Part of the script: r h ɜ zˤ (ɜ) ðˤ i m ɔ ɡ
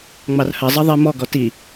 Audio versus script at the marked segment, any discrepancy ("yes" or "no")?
no